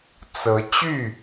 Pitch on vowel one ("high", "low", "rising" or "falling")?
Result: rising